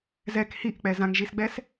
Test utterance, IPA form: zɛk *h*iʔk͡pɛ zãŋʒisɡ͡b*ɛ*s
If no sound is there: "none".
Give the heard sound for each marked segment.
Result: h, ɛ

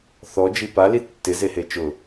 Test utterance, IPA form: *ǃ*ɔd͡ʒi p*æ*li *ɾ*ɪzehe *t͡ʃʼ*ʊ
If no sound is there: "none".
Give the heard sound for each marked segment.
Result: θ, a, tː, t͡ʃ

